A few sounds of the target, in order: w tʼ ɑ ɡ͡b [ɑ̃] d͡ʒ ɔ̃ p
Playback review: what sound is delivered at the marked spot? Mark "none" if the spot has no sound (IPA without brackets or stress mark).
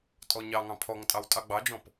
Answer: ɑ